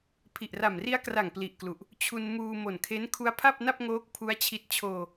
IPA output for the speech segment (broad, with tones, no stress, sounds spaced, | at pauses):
pʰ i˨˩ ʔ r a˨˩ m r i˦˥ a̯ k r a˨˩ ŋ p l i˨˩ ʔ k l u˨˩ ʔ | t͡ɕʰ u˧ n m uː˧ m o˨˩ n kʰ e˦˥ n kʰ u˦˥ a̯ pʰ a˥˩ p̚ n a˥˩ p̚ ŋ oː˦˥ k̚ pʰ u˦˥ a̯ t͡ɕʰ i˦˥ t̚ t͡ɕʰ oː˧